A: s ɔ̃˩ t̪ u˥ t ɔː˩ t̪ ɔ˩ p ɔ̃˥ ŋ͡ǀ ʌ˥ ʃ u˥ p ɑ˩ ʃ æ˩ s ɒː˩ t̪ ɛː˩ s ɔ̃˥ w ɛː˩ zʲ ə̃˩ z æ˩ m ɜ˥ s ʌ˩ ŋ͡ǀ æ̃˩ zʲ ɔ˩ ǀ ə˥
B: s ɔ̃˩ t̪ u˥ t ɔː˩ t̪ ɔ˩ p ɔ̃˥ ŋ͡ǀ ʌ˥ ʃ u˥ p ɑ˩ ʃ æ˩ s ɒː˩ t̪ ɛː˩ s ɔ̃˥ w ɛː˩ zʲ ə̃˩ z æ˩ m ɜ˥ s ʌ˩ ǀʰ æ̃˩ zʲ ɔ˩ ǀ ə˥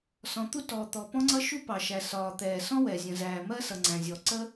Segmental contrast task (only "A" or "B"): A